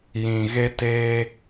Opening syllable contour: low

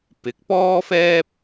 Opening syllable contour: rising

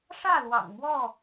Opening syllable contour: falling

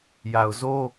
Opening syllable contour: low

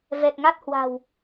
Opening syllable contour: low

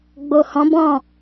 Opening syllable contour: low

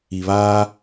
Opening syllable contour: low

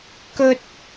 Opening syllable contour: high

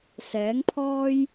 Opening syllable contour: rising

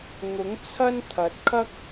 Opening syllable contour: rising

